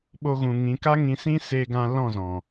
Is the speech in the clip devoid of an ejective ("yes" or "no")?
yes